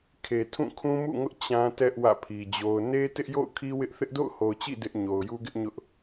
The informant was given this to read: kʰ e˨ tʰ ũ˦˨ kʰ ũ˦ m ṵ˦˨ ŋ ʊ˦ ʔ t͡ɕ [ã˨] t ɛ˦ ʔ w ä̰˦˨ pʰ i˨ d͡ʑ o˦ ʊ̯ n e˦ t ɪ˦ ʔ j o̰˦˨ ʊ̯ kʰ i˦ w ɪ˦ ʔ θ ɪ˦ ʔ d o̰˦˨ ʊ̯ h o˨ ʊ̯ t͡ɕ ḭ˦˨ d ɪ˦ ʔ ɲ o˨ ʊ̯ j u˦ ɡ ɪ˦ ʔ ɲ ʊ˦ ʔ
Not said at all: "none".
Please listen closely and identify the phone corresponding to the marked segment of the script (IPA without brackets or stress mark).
ã˦